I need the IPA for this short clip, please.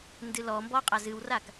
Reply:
n d ɨ l ɔ m b ɔ qʼ a z ɨ w r a k

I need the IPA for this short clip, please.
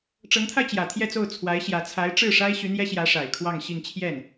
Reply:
ʈ͡ʂ ɤ˧˥ ŋ t̪ʰ a˧ ɪ̯ t͡ɕ j ä˨˩ t̪ʰ j ɛ˥˧ t͡s o˥˩ ʊ̯ t͡sʰ w a˧˥ ɪ̯ ɕ j ä˧˥ t͡sʰ a˧˥ ɪ̯ ʈ͡ʂ ɻ̩˥˩ ʂ a˥ ɪ̯ ɕ y˧˥ n̪ j ɛ˥ ɕ j ä˧˥ ʂ a˨˩ ɪ̯ kʰ w ɑ˥˧ ŋ ɕ i˥˧ ŋ t͡ɕʰ j ɛ˥˩ n

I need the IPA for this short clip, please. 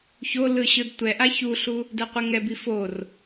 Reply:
ç o l ɯ ɕ ɯ d tʷ ɛ ʔ a ç u ɬ u | d ɛ qʷ ɯ ŋ ɛ b i f o r

